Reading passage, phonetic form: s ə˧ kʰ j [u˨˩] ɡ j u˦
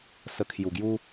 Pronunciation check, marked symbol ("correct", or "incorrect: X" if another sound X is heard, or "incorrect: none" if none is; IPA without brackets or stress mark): correct